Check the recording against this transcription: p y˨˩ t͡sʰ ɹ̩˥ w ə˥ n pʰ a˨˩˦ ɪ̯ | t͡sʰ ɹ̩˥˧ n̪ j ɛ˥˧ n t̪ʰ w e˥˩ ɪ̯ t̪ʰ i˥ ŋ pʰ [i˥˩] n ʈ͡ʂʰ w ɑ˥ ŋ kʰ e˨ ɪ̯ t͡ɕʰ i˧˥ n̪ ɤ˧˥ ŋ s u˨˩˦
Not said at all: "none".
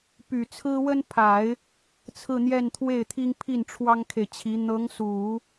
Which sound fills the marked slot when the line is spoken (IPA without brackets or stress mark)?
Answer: i˥˩